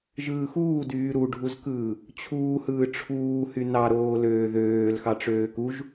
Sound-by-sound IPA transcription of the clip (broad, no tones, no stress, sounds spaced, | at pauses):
ʒ ɯː x uː d yː ɾ u ɖʱ u z k ɯː | t͡ɕʰ uː h ɯː ʈ͡ʂʰ uː h y n ɑ ɾ oː l øː ð øː l x ɑ ʈ͡ʂ øː k u ʒ